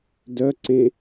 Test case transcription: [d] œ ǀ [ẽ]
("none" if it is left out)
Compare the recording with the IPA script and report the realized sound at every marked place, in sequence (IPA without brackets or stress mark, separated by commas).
d, ẽ